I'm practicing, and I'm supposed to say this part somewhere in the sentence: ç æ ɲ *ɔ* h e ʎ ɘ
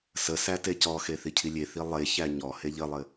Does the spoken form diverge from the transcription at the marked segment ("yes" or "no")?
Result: no